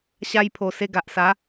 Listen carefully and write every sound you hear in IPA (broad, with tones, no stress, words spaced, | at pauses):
ɕa˧jpʰo˨˩ se˧ɡa˨ʔsa˨˦